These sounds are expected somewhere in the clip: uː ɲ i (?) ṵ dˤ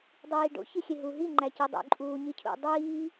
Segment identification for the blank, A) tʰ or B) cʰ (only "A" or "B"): B